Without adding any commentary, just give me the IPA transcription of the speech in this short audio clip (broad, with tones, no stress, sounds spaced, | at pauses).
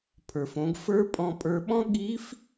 pʰ ə˞˩ f õ˩˧ ɡ f ə˞˧˥ pʼ ɔ̃˧ pʼ ə˞˧ ɓ ɔ̃˥ ɠ i˧˥ f